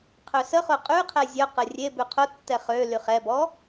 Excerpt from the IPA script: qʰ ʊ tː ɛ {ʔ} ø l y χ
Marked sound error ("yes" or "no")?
yes